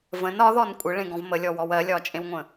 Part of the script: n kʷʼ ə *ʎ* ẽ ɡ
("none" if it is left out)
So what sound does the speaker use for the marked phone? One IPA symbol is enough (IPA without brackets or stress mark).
ɭ